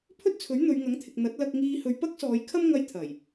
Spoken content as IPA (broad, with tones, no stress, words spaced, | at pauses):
pʰɵ˥t̚t͡sʰɵ˨˥ɥ n̪ɵ˨˧ɥŋɐ˨˥ŋt̪ʰɪ˨k̚ n̪ɐ˨˥t̚lɐ˧k̚ŋiː˧ hɵ˨˧ɥpɐ˥k̚sɔː˨˧j kʰɐ˥m ŋɐ˧j t̪ʰɐ˨˩j